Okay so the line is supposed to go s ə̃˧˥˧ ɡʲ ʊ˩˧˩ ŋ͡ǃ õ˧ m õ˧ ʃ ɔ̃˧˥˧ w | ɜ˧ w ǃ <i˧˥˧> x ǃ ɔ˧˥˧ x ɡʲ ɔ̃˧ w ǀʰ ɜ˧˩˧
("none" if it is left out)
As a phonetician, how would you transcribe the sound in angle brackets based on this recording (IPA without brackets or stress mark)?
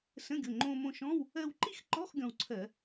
i˥˧